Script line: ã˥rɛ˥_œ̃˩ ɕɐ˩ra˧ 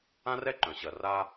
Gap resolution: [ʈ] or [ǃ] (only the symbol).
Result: ǃ